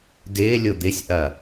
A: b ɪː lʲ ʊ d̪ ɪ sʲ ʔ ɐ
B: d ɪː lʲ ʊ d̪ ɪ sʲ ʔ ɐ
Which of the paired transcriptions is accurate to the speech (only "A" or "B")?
B